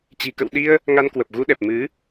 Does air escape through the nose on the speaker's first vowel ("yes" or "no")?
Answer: no